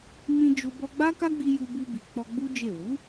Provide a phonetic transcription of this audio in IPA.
mĩ˧ d͡ʒo˦ bɔ˧ɡ͡ba˦ka˦ɡ͡bi˧ ju˧bu˧bi˨ k͡pɔ˧ɡ͡bu˦ d͡ʒe˦˨ wu˨˦

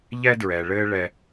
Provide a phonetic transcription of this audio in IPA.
ʎɛ˦dɹɛ˨ɭɘː˦ ɭɛ˦

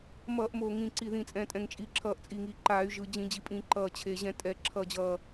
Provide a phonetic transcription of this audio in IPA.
mʌː˧˩˧ʔmo˨˩ ŋĩ˨˩ǀi˨˩ðĩ˨˩ t͡sʼɛ̃˨˩tʼɛ̃˨˩ŋt͡ʃʼi˨˩ ǁʰʌː˧˩˧ʔt͡sʼi˨˩ŋiː˨˩ǃaː˧˩˧y̯ ʒɯ˨˩d͡ʑĩ˧˩˧d͡ʑi˨˩pʼĩ˧˩˧ ǃʌː˨˩t͡ɕʰe˨˩ʑɛ̃˧˩˧ tʼɛ˧˩˧ ǁʰʌ˨˩d͡ʑʌː˨˩

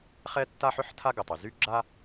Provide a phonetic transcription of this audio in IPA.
χɛ˥tːa˥ ħʏ˥ħtʰa˥ɡʏ˩tˤy˩ zy˥ɡ͡ǁa˥

